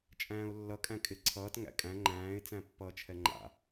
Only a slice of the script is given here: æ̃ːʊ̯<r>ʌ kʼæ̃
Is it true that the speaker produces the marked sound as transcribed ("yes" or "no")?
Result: no